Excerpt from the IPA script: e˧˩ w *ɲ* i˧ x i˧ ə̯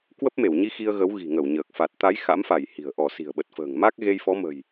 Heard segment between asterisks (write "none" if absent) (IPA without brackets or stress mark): ɲ